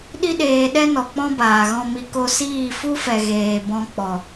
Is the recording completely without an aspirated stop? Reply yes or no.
yes